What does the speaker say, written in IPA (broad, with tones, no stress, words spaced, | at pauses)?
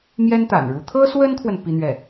mjɛ˥nt̪a̰˨˩nɻu˧˥ t̪ʰɤ˥swə˥nkʰwə˨n pi˥n̪ɥɛ˥˩